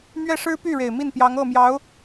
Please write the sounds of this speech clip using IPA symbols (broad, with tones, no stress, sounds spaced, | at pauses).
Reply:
m ɥ ɛ˥˩ ʂ ɻ̩˥ p y˥˩ ɻ e˨˩ ɪ̯ m i˥˩ n p j ɑ˧˥ ŋ ɤ˥˩ m j ɑ˧˥ ʊ̯